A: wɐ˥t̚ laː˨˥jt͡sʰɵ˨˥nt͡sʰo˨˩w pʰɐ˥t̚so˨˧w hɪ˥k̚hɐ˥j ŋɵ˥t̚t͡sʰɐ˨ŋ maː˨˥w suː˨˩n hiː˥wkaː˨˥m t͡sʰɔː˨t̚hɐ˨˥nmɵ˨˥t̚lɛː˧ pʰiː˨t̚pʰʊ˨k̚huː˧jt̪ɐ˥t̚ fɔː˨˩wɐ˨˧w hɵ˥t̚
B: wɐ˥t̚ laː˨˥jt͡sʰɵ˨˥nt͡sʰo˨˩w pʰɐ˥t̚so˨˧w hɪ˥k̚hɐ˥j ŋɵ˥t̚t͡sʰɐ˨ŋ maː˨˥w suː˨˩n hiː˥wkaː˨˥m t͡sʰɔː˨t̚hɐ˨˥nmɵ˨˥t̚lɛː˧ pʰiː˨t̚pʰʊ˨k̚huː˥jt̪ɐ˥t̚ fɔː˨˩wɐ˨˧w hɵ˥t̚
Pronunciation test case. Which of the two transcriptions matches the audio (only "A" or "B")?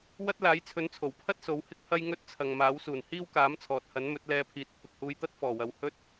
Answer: A